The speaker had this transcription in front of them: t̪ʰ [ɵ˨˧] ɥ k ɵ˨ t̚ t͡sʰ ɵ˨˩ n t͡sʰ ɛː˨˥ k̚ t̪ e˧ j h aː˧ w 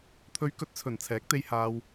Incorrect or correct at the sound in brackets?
correct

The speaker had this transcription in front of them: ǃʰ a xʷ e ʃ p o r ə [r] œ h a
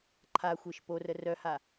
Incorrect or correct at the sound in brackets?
correct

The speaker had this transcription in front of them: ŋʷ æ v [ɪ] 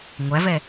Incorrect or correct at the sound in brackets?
incorrect: ɛ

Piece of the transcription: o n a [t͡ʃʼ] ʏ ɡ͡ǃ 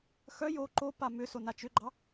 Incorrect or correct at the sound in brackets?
incorrect: t͡ʃ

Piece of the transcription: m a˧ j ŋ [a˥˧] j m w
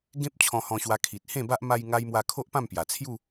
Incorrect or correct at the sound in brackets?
incorrect: a˧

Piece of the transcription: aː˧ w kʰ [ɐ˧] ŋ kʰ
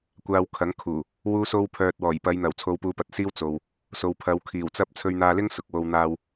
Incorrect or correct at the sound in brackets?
incorrect: ɐ˨˥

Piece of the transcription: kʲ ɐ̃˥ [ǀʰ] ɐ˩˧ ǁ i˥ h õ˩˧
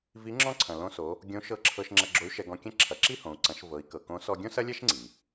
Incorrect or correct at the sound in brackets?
incorrect: ǁʰ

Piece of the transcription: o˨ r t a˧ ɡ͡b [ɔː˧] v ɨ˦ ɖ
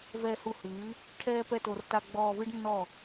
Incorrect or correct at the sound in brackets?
correct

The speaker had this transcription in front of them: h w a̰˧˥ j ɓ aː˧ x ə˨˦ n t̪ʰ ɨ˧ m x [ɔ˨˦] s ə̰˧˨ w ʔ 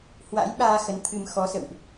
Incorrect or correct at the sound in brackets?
correct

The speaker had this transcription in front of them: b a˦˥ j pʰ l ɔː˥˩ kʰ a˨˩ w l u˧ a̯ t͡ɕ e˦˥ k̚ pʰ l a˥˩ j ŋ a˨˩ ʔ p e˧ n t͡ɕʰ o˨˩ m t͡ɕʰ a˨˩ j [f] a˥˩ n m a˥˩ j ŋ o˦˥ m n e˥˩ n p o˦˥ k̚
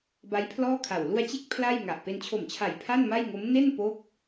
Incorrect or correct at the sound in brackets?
incorrect: pʰ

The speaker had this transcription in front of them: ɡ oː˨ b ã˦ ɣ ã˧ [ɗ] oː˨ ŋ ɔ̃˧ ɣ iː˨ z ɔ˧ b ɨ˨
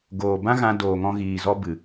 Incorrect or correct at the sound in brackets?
incorrect: d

